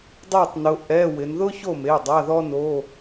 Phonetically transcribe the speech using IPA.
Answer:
dˤeː˥˨tˤnʊ˨˦ ʔɛ˧˥˧wɪ˨˦n ðʊ˥ço˥˨me˩˧˩ dˤa˧˥˧ðɔ˥noː˧˥˧

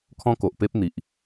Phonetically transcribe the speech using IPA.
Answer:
kʰɔ̃˦ko˨ʔ pe˦p̚n̪i˨ʔ

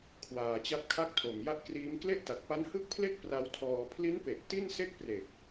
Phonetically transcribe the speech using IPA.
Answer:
kʰwaː˨˩t͡ɕa˦˥p̚ kʰa˥˩k̚tʰo˨˩mja˥˩ʔkriː˦˥m kle˥˩ʔta˨˩t̚pa˦˥nhɯ˥˩k̚ pʰle˦˥k̚ pra˦˥wtʰɔː˧ pʰli˦˥npe˨˩ʔ ti˥˩nse˥˩k̚ pre˨˩k̚

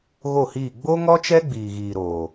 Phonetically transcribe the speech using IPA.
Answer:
ɣo˦˨hiː˦˨ ɡ͡bo˦ŋɔ˦t͡ʃɛ˦ ɡ͡biː˨ɣiː˨ɾoː˨

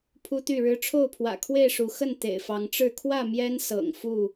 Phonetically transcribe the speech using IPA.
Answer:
pʰu˦t̪y˥˨ɻɻ̩˦ ʈ͡ʂʰo˥˨ʊ̯pʰwä̰˨˩kʰwe˥˨ɪ̯ʂu˨˦ xə˥˨n t̪ḛ˨˩ɪ̯fɑ˨˦ŋʈ͡ʂɻ̩˥˨ kʰwä˥˨ mjɛ˦nsɤ̰˨˩ŋ fu˥˨

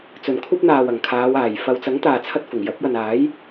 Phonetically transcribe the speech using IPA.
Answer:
t͡sɵ˨˩nkʷʰɐ˧p̚ n̪aː˨˩w ɐ˨˩ŋkʰaː˨˧w aː˨˩j fɐ˨wt͡sɐ˨˥ŋ t̪aː˨t͡sʰɐ˧t̚fʊ˨˩ŋ jɐ˨˥p̚jɐ˨naː˨˥j

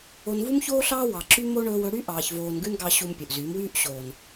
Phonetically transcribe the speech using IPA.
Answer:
o˧nvu˦mçoː˦ ɬɑː˦wɑ˨ǁy˦mo˦ ɳɵː˧wɵ˨˦ɽy˦ ʔɑː˧çvoː˧nɡʉ˦n ɡɑ˧ ɕu˧mpʲɵ˨ʔzyː˨˦mwyː˦ʔ ɕoː˨n

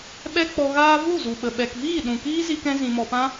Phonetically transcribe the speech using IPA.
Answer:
ɓɛ˦k͡pɔ˧ɣaː˦ vu˦˨zu˨ɓə˨ ɓɛ˨kviː˦˨ ɗũ˨ kiː˦zi˧kɛ̃˧ zĩ˨mɔ˨pã˧

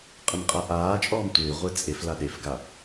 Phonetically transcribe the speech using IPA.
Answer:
qʼɪmqʼaʔaːt͡ʃʼɔːm tʷɪːʁʷɪː t͡sʼef laɗefɡa

